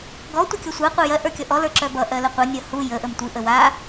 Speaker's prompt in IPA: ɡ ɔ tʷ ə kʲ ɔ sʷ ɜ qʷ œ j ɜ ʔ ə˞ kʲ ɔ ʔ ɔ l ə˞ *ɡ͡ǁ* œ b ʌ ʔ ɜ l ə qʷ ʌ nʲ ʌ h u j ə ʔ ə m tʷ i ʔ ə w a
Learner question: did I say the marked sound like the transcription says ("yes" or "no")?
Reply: no